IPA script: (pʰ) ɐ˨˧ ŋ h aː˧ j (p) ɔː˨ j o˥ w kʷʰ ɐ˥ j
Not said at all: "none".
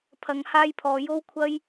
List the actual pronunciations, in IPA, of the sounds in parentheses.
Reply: pʰ, pʰ

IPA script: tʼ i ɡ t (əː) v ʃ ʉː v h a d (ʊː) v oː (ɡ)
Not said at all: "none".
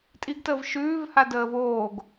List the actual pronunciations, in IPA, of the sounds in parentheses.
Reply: əː, əː, ɡ

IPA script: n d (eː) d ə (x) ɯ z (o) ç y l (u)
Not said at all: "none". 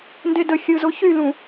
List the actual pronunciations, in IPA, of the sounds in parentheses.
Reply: e, xʲ, o, ũ

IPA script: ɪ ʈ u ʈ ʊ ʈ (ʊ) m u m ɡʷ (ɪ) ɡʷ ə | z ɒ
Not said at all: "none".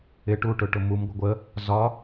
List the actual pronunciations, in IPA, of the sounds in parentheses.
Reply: ʊ, ɪ

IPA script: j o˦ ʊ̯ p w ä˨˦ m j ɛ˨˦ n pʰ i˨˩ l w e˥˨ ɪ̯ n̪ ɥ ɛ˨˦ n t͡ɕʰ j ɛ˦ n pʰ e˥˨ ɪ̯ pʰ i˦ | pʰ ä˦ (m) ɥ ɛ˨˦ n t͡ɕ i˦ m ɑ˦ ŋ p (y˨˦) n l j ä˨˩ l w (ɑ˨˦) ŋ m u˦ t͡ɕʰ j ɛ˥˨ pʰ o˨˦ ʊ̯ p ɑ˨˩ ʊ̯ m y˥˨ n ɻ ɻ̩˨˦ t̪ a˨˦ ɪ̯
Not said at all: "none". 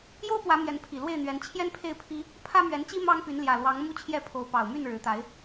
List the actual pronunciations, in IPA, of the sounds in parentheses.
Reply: m, y˨˦, ɑ˨˦

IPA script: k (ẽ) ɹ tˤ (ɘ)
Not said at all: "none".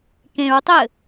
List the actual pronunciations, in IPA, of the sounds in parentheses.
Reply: ẽ, ɘ

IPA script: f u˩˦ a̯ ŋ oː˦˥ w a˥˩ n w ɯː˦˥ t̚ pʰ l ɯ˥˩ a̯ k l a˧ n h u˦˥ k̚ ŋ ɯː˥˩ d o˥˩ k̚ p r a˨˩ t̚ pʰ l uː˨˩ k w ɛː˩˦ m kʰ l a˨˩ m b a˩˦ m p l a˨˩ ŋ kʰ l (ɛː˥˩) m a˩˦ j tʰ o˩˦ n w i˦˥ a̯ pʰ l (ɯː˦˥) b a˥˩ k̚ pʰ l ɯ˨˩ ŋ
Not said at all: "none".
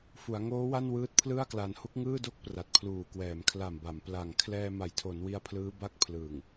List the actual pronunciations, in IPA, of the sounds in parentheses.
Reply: ɛː˧, ɯː˦˥

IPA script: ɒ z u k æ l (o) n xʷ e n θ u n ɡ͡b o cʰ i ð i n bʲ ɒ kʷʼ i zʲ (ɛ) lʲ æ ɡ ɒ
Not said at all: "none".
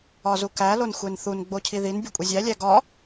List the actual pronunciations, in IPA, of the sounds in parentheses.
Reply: o, æ

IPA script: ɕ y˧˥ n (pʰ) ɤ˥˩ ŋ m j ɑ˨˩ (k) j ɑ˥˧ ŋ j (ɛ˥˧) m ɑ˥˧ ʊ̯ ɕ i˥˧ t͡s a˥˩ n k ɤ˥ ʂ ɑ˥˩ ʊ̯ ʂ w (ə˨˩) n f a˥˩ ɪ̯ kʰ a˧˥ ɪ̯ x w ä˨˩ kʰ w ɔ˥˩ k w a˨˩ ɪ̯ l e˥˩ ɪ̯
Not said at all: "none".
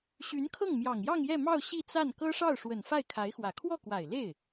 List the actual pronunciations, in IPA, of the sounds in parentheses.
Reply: kʰ, ŋ, ɛ˥˧, ə˨˩

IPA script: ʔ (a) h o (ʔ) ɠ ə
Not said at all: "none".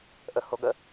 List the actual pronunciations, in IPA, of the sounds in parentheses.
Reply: ə, none

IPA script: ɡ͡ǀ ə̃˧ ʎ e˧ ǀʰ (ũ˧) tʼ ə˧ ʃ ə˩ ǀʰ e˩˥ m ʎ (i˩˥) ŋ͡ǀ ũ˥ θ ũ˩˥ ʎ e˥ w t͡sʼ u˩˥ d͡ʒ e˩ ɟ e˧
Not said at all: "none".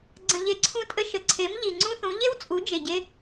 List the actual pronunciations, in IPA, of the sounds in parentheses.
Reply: ũ˥, i˩

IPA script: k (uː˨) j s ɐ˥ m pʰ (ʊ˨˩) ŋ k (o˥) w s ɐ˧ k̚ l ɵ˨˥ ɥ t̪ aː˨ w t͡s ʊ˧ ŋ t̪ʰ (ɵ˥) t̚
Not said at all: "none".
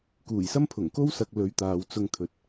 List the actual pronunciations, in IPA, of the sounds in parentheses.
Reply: uː˨˩, ʊ˨˩, o˥, ɵ˨

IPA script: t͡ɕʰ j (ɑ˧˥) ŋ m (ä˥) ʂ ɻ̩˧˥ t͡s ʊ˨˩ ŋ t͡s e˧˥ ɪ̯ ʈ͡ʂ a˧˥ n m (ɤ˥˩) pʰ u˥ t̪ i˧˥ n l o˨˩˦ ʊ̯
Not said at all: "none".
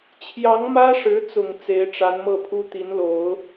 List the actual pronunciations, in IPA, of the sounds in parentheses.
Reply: ɑ˧˥, ä˥, ɤ˥˩

